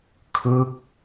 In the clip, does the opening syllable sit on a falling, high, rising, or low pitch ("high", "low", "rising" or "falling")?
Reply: falling